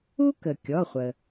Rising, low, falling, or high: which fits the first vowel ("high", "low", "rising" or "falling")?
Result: high